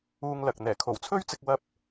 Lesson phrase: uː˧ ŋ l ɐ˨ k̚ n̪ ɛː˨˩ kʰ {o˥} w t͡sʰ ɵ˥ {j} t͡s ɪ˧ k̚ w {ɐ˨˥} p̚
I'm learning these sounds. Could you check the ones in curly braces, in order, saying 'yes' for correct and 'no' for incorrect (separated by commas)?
no, no, no